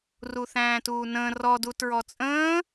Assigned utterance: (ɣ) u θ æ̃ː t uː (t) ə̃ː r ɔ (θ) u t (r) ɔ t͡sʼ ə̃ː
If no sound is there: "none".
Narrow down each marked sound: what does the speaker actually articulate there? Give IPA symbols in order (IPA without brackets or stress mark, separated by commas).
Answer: r, n, d, ɹ